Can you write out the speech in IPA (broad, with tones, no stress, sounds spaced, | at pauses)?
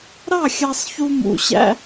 ɾ ɑ˦˨ xʲ ɑ˧ sˤ ç u˧ m ṵ˧ ɕ æ̰˦